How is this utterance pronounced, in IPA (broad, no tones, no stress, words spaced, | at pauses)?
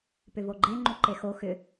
pʏvoɡ͡ǃe ŋ͡ǃuǃexo xʏ